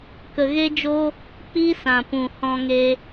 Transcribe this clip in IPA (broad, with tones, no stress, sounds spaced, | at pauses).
k ə˧ ɣ e˦ d͡ʒ o˦ | k͡p i˦ s ã˨ p ũ˨ h ɔ̃˧ ŋ e˧